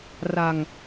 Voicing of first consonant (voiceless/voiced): voiced